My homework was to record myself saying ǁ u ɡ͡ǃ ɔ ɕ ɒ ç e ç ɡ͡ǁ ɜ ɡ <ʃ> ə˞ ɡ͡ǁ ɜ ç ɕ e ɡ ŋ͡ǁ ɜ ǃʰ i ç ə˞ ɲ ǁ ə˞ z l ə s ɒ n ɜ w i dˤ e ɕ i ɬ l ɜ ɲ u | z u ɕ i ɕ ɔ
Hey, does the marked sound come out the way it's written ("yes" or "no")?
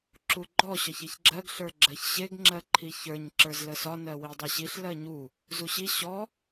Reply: no